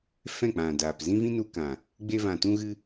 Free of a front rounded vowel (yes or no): yes